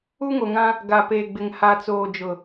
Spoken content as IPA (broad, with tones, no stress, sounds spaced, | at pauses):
u˦ ŋ o˨ ŋ ã˦ | ɡ a˨ p e˨ ɡ͡b ɪ˨ ŋ h a˨ t͡s oː˨ d͡ʒ ʊ˨